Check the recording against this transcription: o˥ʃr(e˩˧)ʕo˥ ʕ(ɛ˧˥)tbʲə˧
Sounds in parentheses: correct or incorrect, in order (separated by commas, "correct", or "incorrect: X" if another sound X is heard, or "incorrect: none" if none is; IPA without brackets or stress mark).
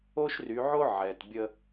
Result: incorrect: y˩˧, incorrect: ɛ˩